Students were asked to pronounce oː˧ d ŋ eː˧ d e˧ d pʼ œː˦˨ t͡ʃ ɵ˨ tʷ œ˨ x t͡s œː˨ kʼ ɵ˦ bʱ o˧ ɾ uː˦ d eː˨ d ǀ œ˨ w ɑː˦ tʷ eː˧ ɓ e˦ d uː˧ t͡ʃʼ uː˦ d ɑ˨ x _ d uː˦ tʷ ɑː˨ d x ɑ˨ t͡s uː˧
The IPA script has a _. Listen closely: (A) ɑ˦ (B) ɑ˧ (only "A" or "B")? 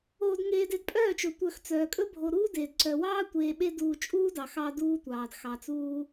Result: B